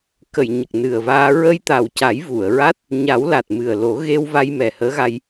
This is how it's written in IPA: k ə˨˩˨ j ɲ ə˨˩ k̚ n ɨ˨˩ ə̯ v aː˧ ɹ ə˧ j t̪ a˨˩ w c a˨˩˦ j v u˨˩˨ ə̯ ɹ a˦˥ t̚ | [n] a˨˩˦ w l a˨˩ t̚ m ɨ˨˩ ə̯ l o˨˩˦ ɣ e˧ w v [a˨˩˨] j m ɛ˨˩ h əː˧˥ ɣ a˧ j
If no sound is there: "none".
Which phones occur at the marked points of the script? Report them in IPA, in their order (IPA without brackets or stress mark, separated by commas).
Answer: ɲ, a˧